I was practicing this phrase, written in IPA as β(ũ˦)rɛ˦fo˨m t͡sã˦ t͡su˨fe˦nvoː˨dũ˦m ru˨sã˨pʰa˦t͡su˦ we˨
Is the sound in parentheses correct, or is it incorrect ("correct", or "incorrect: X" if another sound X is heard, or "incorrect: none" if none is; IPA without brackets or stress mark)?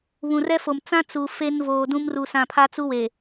incorrect: ũ˨